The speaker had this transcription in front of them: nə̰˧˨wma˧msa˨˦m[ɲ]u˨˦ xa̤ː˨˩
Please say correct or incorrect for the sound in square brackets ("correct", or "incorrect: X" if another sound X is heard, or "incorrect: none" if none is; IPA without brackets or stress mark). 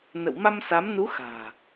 incorrect: n